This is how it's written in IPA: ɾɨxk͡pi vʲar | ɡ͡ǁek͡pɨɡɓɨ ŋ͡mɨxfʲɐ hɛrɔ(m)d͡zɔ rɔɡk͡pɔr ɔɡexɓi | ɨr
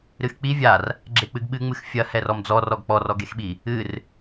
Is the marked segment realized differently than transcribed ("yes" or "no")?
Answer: no